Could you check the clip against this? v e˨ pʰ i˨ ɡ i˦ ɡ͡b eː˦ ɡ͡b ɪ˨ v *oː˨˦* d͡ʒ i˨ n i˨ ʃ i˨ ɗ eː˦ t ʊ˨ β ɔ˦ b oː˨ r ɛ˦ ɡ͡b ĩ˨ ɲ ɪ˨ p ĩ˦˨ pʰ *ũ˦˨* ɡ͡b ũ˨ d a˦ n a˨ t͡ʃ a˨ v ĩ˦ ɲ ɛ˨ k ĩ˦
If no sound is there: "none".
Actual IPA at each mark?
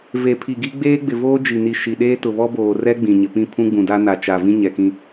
oː˦, ũ˦

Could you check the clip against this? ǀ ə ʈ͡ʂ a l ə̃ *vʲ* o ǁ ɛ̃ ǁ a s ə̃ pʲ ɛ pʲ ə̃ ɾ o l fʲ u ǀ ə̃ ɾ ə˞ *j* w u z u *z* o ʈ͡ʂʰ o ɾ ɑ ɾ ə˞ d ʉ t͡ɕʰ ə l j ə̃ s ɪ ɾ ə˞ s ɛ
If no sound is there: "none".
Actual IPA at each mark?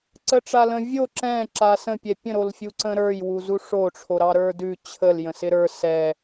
vʲ, j, ʂ

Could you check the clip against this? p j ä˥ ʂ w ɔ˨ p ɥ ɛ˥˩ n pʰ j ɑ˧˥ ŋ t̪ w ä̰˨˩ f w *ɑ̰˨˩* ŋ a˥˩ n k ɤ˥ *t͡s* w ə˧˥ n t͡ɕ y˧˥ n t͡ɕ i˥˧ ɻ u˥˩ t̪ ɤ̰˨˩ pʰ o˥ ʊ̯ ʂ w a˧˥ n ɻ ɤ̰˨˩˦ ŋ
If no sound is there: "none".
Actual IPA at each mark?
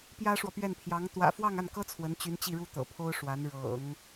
ɑ˥˧, t͡sʰ

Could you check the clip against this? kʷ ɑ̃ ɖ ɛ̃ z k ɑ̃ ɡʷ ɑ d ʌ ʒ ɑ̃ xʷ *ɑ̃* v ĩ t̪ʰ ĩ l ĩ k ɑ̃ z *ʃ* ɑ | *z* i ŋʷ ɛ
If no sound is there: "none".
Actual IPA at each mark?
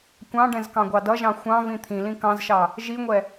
ɑ̃, ʃ, ʒ

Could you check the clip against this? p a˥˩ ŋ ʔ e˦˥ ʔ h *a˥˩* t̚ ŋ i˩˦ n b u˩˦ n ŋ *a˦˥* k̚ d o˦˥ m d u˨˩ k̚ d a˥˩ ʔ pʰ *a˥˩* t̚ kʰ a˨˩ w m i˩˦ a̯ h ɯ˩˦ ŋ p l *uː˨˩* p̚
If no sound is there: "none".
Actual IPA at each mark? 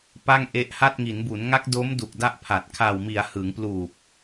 a˥˩, a˦˥, a˨˩, uː˨˩

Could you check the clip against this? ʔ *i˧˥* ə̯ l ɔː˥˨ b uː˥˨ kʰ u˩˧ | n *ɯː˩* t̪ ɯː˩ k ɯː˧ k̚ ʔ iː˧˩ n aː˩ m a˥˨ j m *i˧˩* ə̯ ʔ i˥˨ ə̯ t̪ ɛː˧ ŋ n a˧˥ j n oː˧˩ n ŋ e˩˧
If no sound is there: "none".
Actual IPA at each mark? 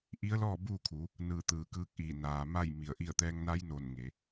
i˧˥, ɯː˧˩, i˧˩

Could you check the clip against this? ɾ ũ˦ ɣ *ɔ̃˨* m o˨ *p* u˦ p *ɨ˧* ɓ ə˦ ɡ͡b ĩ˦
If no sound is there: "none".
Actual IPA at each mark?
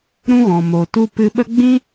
ɔ̃˨, t, ɨ˧

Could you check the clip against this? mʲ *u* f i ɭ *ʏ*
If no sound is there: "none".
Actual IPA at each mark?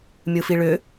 ɯ, ʏ

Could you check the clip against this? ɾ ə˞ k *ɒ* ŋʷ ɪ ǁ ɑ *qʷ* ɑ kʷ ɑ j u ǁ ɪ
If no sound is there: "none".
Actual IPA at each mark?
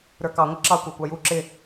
ɑ, kʷ

